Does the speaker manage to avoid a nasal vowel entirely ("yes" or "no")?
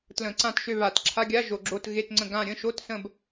no